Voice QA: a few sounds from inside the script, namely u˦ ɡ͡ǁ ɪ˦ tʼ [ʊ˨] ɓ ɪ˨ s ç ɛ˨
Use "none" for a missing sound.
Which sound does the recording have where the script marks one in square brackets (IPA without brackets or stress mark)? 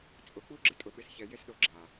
ʊ˨